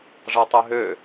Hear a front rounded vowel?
yes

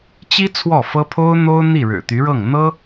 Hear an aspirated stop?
yes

